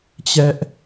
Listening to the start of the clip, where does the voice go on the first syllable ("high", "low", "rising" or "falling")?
high